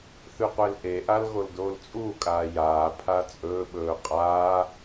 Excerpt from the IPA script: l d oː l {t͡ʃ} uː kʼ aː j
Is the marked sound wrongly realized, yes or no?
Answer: yes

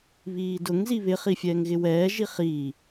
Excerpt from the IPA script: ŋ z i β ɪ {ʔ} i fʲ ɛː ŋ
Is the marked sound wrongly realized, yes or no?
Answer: yes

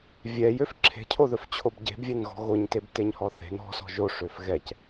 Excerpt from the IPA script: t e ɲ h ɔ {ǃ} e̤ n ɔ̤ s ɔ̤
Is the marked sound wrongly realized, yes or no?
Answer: yes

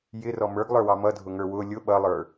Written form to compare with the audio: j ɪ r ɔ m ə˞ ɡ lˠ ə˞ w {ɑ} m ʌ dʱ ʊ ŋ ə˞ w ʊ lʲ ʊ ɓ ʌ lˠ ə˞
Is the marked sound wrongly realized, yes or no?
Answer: no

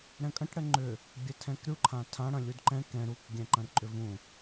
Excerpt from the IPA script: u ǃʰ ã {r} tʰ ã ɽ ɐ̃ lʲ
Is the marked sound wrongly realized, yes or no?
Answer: yes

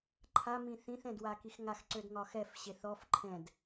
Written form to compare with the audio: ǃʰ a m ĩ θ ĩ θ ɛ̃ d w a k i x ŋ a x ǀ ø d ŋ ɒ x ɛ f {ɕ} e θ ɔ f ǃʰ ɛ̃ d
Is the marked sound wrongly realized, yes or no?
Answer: no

